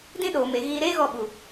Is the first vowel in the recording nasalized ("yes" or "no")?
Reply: yes